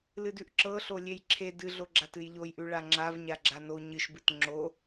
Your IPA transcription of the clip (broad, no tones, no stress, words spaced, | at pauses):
lɨdʉʔǁɤɬo lʲejǁʰe dɨɮoɡ͡ǁat ɨjʎojʔʉɭa ŋ͡ǁavɲa ɡ͡ǁano ɲɨʃbɨt ŋ͡ǁo